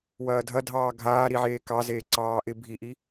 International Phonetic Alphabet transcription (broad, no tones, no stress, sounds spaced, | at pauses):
w ɐː dʱ ɐ dʱ ɑː ɡʱ aː ɾ i ʕ eː k ɑ z eː ǀ ɑː ʔ ɪ bʱ i ʔ i